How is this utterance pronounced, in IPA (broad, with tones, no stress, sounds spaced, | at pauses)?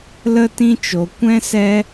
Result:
l ə˦ t ĩ˦ t͡ʃ o˧ kʷ ɛ̃˦ s ɛ˦